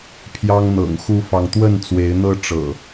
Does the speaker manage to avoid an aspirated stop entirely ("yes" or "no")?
no